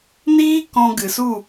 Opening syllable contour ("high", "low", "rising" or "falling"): high